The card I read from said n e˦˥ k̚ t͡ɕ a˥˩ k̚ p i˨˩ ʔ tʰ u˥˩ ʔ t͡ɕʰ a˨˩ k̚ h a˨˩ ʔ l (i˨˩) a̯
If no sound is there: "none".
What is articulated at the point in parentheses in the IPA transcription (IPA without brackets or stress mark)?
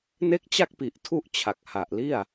i˥˩